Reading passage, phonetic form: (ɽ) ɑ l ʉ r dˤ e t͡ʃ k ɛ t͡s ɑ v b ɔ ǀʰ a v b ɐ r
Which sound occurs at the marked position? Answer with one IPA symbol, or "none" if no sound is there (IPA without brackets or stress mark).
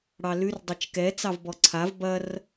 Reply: ɽ